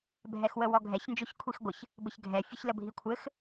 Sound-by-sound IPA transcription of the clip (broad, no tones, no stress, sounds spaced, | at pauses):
bʱ ɛ x w ə w ɔ ɡʱ ɛ ç n d͡ʒ o ç kʷʰ i x ɡʷ ə ç | b ɘ ç ɡʱ ɛ fʲ ə ç l ə bʱ i kʷʰ ɘ x